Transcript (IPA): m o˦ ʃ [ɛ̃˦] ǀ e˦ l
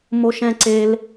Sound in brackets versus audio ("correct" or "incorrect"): correct